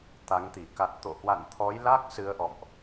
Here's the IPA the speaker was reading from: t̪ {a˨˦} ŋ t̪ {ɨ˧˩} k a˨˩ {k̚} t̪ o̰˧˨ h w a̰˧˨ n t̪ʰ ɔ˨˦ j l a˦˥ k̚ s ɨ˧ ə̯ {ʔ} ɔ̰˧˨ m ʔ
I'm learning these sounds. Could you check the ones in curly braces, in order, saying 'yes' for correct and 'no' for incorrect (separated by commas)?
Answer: yes, no, no, yes